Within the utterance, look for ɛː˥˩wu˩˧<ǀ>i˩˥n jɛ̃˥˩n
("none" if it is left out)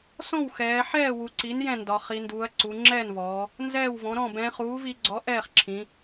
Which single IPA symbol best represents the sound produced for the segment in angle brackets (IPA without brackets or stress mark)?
ǀ